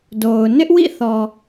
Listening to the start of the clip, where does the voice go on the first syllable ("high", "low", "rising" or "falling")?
low